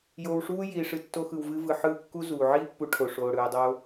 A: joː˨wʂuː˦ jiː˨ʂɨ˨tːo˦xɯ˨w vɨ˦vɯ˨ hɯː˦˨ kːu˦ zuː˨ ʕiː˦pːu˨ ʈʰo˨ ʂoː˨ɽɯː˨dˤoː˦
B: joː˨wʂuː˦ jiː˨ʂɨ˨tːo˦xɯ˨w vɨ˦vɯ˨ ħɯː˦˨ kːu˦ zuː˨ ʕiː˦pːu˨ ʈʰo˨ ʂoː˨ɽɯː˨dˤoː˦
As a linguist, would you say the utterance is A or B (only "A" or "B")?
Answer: B